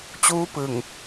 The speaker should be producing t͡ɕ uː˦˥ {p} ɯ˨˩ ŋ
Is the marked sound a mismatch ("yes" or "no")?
no